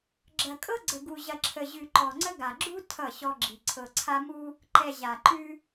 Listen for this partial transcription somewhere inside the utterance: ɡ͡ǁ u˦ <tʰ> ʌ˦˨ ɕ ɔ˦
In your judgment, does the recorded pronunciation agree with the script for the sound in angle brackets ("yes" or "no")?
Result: yes